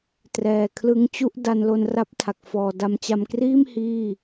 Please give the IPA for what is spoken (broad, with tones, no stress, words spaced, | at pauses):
trɛː˨˩kʰlɯ˦˥ŋt͡ɕu˥˩ʔ da˧nlo˧nra˦˥p̚ tʰa˨˩k̚fɔː˨˩da˧m t͡ɕa˧mkriː˥˩m hiː˥˩